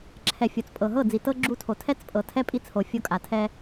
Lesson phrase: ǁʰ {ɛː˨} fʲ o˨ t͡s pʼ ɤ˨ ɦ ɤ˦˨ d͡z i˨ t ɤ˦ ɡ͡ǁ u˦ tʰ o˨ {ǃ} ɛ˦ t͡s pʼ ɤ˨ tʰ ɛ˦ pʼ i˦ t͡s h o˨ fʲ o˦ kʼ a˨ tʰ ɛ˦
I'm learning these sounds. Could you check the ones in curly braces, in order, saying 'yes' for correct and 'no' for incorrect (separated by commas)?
no, no